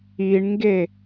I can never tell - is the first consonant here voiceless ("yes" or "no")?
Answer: no